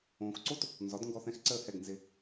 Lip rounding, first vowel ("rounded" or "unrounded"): rounded